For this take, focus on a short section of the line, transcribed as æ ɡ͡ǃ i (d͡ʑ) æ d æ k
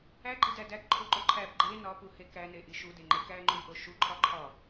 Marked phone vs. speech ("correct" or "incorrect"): incorrect